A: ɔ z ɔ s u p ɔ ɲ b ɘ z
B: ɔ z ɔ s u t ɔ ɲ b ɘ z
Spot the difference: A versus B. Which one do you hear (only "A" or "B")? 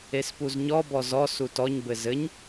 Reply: B